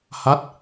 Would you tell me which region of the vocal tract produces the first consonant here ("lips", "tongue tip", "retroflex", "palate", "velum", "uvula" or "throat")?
throat